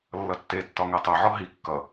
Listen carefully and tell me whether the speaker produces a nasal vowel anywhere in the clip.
no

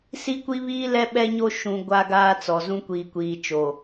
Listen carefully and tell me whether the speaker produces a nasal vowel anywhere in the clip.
yes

